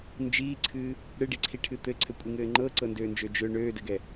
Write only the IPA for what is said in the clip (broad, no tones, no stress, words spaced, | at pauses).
nd͡ʒiːǀʰɨː | ɽɨɖiǀʰiʈʰɨ t̪ɘǀʰɘkʷʼiŋɘː ŋ͡ǃɤǀɤndøːnd͡ʒø d͡ʒø ɳøːdɘɡɛ